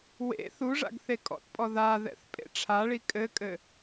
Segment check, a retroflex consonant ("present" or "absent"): present